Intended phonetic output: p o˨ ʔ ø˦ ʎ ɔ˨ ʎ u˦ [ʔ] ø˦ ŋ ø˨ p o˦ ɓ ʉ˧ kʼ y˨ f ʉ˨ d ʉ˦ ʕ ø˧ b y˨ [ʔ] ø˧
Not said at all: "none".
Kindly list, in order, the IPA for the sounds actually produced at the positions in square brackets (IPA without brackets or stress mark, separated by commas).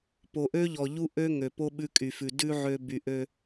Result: ʔ, ʔ